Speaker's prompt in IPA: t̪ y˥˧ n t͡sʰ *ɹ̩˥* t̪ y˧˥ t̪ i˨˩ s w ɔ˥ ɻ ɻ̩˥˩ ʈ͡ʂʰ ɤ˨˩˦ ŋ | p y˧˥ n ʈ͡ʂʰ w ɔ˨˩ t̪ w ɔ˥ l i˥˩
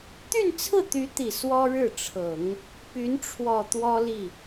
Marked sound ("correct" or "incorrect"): incorrect